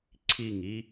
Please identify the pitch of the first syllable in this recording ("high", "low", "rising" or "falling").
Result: falling